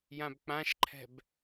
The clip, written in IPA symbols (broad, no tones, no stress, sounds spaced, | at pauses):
j ã b k͡p ã ʃ ǃʰ ɛ̤ b